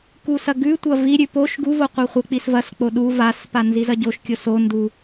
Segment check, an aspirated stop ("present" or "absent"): absent